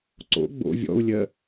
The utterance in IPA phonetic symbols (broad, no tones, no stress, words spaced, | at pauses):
ǀo̰ ɡ͡bo̰ vʲɔ̰u̯lʲɜ